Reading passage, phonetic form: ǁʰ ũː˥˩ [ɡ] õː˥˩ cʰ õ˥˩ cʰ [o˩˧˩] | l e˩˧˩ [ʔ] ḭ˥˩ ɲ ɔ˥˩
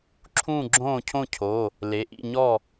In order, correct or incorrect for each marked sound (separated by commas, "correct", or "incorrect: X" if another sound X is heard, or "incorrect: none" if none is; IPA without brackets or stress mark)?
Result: incorrect: ɡ͡ǁ, correct, correct